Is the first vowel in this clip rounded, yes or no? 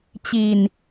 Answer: no